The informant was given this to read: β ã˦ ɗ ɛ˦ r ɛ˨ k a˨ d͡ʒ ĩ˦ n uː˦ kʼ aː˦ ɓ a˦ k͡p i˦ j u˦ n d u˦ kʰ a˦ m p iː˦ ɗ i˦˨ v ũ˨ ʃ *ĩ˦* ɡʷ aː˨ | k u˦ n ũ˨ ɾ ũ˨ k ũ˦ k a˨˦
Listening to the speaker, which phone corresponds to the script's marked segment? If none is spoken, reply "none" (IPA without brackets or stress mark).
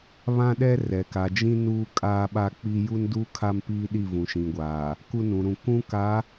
ĩ˨